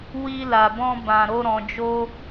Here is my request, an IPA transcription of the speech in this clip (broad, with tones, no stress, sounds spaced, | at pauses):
w i˧ l a˨ b ɔ̃˧ b ã˨ ɾ o˧ ɾ ɔ̃˨ d͡ʒ o˧